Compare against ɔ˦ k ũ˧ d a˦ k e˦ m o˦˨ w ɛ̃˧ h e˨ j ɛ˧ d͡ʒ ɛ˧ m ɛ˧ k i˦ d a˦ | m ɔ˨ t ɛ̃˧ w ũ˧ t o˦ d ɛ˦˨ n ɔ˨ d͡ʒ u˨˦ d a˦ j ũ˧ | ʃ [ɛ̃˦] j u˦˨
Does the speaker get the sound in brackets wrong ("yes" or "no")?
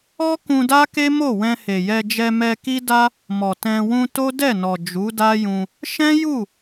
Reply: no